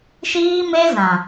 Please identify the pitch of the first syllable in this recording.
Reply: high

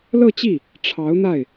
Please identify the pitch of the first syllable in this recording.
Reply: falling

